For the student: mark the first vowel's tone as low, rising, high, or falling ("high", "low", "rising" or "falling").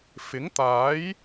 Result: rising